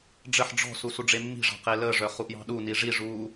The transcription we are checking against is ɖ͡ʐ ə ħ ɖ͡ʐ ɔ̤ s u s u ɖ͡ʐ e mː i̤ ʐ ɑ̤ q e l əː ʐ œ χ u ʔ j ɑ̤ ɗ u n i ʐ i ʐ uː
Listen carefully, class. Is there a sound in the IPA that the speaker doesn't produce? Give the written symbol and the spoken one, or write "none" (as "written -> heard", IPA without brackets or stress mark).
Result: none